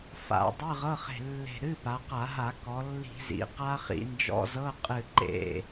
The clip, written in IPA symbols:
f a̰˧˩˧ dˤ ɨ˧˥˧ ʁ ɤ˧˥˧ χ e̤˧˩ lː e̤˧˩ ɾ ɨ˧˥˧ p a˩˧ q a˧˩˧ ɦ a˧˩˧ k ɔ˩˧ lː i̤˧˩˧ z ḭ˩˧ q a˦˥ χ ḭ˩˧ n d͡ʒ ɔ̰˧˥˧ z ɤ˧˥˧ qʼ ɨ˧˩ ǃ ḛ˧˩

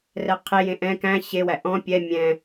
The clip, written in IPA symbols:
r ɛ qʰ e j ẽ ʔ ɛ̃ k æ̃ ɕ e w æ ʔ ɔ̃ pʲ ɛ mʲ ɛ̃

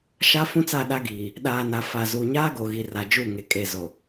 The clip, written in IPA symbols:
ʃ a˦ f ũ˦ t͡s a˦˨ ɗ a˦ ɡ iː˨ | ɗ aː˨ n a˨ f a˨ z uː˨ ɲ aː˦ ɡ o˨ ɣ i˨ r a˨ d͡ʒ u˦˨ ŋ e˨ kʼ e˨ z o˨

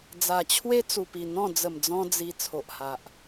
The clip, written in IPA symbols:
d͡z a˨˩ t͡ɕʰ w e˦ t͡s u˨˩ p i˨˩ n̪ ɔ̃˥˧ d͡z ə˨˩ m d͡z ɔ̃˧ d͡z i˧ t͡sʰ o˨ ʔ h a˨ ʔ

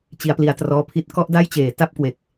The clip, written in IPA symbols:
t͡ɕ i˩˦ a̯ p l i˩˦ a̯ t r ɔː˧ pʰ i˦˥ t̚ k ɔ˥˩ ʔ d a˥˩ j t͡ɕ eː˩˦ t a˥˩ p̚ k w e˨˩ k̚

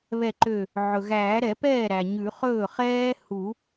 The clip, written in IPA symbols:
β ɛ˧˩ ǃ ø˧˩ | ʕ ɵ˩ ɣ æː˨˩˦ ɾ ɛ˨˩˦ p ɛː˥˩ ɾ æ˩ ɲ ʉ˨˩˦ χ ɵː˥˩ χ ɛː˥ h u˨˩˦

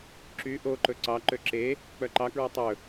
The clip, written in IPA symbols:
ǁ y ʔ o ǃ ɵ ǀ ɑ ǃ ø ǁ e | k͡p œ ǃ ɑ k ɹ ɔ tˤ ɵ

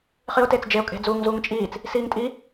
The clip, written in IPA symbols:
χ i ʊ̯ t e t͡s d͡ʒ e ʊ̯ kʼ e̤ d͡z uː ŋ z uː ŋ t͡ʃʼ iː t͡s | s iː ŋ tʼ i

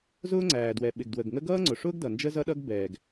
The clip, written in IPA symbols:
z ʊː˥ ŋ͡ǀ æː˩ d w ɛ˩ ɓ ɪ˩ ɡ d w ə˩ ɡ ŋ ə˥ ɡ ʌː˥ ŋ͡ǀ ʊ˩ ʂ ʊː˥ ɡ d ʌ˩ n d͡ʒ ə˥ z ʌ˥ ɗ ʌ˥ ɡ b ɛː˩ ɡ

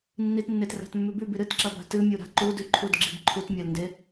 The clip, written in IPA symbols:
nː i t nː e t r a̤ t mː ʉ b ʉ b i ɾ ɨ t ǁ ɐ b a̤ t ɨ mʲ u ɾ a̤ ǃ u d ʉ ǃʰ u d ɡ͡ǁ i b ǃʰ u t mʲ a l n d e

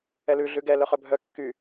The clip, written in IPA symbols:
ɛ l ʉ ɮ ʉ ɡ ɛ l œ χ œ bʱ œ kː y

